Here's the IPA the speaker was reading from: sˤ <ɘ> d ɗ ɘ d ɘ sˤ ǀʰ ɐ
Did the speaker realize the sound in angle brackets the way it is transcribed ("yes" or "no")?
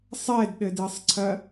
no